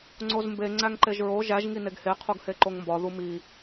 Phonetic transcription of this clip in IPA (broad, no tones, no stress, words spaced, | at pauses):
ŋ͡ǀozmbe ŋ͡ǀæŋǃeʒɹo ʒæʒ ŋineɡhe qʰuɡheǃoŋmbɒ ðumi